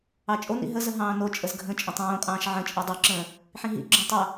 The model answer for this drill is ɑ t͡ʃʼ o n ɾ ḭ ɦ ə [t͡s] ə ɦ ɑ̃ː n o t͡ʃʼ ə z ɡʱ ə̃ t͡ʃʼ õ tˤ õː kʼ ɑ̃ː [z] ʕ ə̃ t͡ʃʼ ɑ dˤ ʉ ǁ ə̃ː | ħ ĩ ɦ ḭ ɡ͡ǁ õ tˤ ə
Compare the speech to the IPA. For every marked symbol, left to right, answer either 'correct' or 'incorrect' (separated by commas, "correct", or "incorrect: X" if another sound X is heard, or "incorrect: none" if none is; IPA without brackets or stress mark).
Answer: incorrect: z, incorrect: ʃ